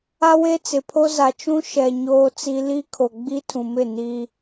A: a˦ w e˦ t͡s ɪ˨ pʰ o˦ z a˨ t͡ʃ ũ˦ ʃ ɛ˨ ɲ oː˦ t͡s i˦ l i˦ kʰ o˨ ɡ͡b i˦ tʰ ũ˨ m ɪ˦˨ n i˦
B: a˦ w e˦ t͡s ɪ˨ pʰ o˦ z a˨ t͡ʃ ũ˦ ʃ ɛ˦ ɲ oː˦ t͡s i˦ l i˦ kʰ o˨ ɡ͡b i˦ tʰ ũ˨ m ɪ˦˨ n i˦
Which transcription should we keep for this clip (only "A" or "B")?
A